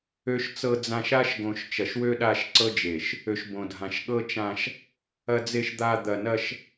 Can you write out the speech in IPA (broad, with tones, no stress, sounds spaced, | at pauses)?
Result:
ø˨ ʃ t͡s ɤ˨ d͡z ã˨ ʃ a˦ ʃ ɡ õ˨ ʃ t͡ʃ ɐ˨ ʃ w ø˦ ɗ a˦˨ ʃ ǀ ɤ˦ d͡ʒ e˨ ʃ | ø˨ ʃ b õ˨ dʱ ã˨ ʃ ɠ ɤ˦ t͡ʃ ã˦ ʃ | ɐ˨ d͡z e˨ ʃ d̪ a˨ d̪ ɐ˨ n ɐ˦ ʃ